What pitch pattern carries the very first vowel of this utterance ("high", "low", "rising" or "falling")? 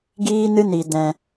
high